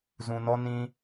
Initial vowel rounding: rounded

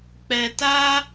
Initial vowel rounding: unrounded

